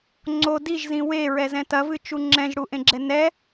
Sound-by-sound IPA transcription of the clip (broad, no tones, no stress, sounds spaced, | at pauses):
ŋ͡ǀ o d i ʒ z ĩ w e ɹ ɛ z ɛ̃ t ɐ v ɨ t͡ʃ u ŋ͡ǁ ɛ̃ ʒ ɽ u ʔ ẽ ɡ͡ǁ ɛ n ɛ